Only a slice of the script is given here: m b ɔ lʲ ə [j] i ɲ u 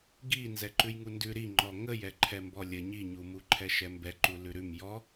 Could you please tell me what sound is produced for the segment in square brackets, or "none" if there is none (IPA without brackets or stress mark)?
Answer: ɲ